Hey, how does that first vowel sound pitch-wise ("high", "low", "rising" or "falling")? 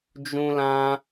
high